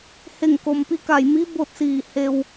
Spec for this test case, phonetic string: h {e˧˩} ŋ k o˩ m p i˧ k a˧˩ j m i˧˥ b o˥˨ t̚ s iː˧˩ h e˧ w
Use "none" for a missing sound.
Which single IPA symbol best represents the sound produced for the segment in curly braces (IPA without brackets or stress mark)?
e˧˩